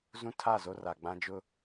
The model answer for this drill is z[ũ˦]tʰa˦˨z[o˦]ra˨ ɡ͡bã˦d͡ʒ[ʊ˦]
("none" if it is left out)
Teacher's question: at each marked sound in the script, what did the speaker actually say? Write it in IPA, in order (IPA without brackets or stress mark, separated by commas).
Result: ũ˦, o˦, ʊ˦